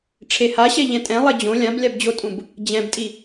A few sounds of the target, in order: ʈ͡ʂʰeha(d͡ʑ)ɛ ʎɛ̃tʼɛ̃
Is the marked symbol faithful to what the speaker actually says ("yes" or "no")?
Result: no